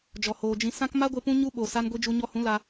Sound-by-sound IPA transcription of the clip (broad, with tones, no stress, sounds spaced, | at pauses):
d͡ʒ ɔ˨ h oː˨ d͡ʒ ĩ˧ s ã˦ k m a˦ ɡʷ e˧ p ũ˦ ɲ u˦ ɓ o˨ s a˧ n ɡʷ i˧ d͡ʒ u˧ ɲ ɔ˧ h ũ˨˦ l a˦